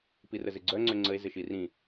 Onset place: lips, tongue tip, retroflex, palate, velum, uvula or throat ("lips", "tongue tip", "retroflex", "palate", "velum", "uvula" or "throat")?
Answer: lips